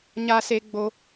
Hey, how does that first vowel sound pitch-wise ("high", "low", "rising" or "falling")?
high